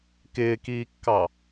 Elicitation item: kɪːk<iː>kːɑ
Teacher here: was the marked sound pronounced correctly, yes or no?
yes